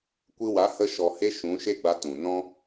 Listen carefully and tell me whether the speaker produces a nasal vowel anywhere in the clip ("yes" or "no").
yes